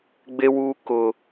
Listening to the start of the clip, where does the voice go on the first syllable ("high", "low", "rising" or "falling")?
high